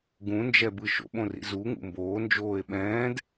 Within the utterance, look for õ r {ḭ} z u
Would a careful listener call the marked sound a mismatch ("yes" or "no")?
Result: no